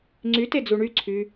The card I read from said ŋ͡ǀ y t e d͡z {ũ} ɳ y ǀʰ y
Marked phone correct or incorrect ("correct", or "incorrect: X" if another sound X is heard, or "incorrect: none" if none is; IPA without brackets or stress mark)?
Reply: incorrect: u